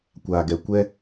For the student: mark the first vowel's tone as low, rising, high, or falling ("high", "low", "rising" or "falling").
low